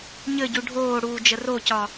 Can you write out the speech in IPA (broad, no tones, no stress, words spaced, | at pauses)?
ɲɘɟu ɖʱoːɽuːd͡ʒə rocɒ